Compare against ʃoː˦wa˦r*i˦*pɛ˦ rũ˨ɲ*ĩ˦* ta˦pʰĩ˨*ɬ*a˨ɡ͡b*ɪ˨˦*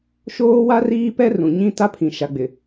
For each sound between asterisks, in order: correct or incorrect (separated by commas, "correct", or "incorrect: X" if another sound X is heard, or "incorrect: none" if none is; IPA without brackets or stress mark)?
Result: incorrect: iː˦, correct, incorrect: ʃ, incorrect: ɪ˨